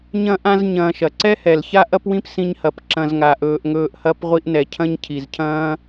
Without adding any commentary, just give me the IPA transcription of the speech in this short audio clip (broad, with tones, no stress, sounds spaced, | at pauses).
ɲ ɐ̃˦ ʔ ã˦ z ɲ ɐ̃ː˧ ʃ ɐ˨ ǀ ɛ˦ h ɛ˨ l ç a˦ ʔ ɐ˦ p w ĩ˦ p s ĩ˧ ɲ h ɐ˨ p ǁ ɐ̃˧ z ŋ a˨ ʔ ɵː˧ ʔ ŋ ɵː˧ ʔ h ɐ˦ p ʁʷ i˧ ʔ n ɛ˨ cʰ ɐ̃˦ ɲ cʰ i˨ z cʰ ɐ̃ː˦